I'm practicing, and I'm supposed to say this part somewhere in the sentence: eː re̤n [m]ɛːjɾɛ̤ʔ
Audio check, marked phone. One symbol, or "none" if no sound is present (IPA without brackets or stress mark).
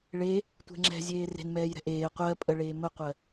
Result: m